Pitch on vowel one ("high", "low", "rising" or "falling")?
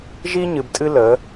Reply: high